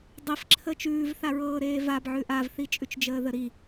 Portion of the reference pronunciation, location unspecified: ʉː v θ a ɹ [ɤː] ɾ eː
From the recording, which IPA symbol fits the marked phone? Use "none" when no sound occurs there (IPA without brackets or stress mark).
ɤː